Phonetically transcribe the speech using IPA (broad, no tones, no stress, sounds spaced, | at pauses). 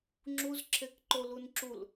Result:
ŋ͡ǁ u z ǁʰ e k ǃ o l u n ǁ u l